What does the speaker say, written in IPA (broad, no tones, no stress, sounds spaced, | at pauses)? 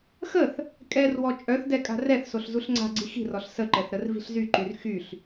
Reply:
x ə θ | kʼ ɛ r w ɔ t͡ʃʼ œ θ d ɛ kʼ a̤ r ɛ θ s o ɬ z u ɬ ŋ͡ǀ a̤ ɡ͡ǀ i x i̤ r ɔ ɬ s ə ǃ ɛ θ ɾ ə r v i̤ ɬ z y ǃ y r x y ɬ